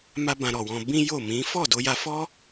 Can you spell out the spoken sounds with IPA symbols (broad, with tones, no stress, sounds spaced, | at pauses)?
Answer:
m a˦ b ã˧ ɾ ɔ˨ w ɔ̃˧ b ĩ˦ j o˦˨ m ĩ˨˦ f ɔ˦˨ d o˧ j a˧ f ɔ˦